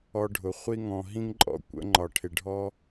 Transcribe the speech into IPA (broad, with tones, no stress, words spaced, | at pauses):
ɔ˧ɖʱʊ˨ χʷi˦ŋɔ̃˧ ɦĩ˦ŋǃʼɔ̰˧kʷə̰˨˦ ŋ͡ǃɒ˨ʈʰɪ˨ɖʱɔ˦